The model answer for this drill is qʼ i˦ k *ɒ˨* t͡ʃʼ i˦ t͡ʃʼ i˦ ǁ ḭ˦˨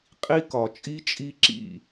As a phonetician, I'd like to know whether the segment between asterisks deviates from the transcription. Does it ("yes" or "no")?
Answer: no